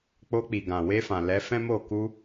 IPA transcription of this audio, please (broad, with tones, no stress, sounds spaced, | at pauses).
k͡p o˧ k͡p i˨ ɡ ã˨ w e˧ f ã˨ l ɛ˨˦ f ɛ̃˦ m o˦˨ k u˧